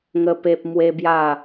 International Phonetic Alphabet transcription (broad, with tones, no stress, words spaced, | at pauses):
ŋə˦pe˦p̚ mwe˦bja˥˧